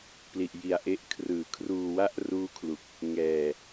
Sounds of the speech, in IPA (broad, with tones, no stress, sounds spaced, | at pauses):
p l i˨˩ ʔ j i˨˩ a̯ ʔ e˦˥ ʔ kʰ r ɯː˨˩ kʰ r uː˧ w a˥˩ ʔ r uː˦˥ kʰ l u˨˩ k̚ | ŋ ɛː˨˩